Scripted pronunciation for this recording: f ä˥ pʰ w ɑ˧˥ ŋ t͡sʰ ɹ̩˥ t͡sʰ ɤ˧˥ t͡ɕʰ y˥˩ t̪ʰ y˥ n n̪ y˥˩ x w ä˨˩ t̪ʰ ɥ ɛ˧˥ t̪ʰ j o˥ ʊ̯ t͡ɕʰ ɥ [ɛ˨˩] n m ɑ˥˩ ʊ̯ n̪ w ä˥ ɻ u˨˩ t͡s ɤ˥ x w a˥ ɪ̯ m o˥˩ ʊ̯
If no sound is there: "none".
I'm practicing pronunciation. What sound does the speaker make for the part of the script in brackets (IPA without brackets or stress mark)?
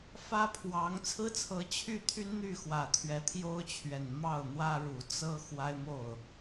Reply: ɛ˨˩